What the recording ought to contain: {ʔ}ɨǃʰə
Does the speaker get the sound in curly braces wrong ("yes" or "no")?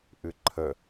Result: no